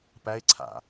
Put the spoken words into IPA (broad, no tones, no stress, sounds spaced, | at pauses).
p æ ɪ̯ ǀʰ a̰